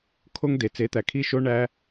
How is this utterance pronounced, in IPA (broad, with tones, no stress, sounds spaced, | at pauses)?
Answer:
kʰ o˧ ŋ d e˨ t͡s e˨˦ t̪ æ˨ kʰ i˦˨ ʃ o˦ ɳ æ˦